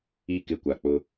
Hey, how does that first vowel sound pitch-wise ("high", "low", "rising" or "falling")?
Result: falling